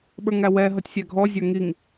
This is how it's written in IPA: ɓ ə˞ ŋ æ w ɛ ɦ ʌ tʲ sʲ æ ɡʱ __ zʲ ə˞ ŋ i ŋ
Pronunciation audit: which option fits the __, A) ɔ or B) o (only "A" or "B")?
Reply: A